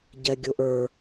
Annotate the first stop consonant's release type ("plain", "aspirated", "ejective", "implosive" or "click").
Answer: plain